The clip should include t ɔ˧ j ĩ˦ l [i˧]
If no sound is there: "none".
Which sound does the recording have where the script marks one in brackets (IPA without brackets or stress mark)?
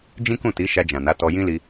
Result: i˧